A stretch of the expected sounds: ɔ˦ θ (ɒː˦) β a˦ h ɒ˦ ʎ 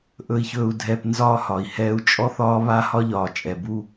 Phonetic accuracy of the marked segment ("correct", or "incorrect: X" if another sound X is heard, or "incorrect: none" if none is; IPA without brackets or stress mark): correct